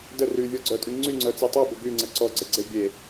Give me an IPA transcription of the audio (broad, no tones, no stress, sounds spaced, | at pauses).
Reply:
d ə r y vʲ ɔ ɡ͡ǀ œ tʼ y ŋ͡ǀ y ŋ͡ǀ œ t͡s i tˤ u b ə ɡ y ŋ͡ǀ ə ǀ ɔ ɡ͡ǀ ə ɡ͡ǀ e bʲ e